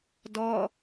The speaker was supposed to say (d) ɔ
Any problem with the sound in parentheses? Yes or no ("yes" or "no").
no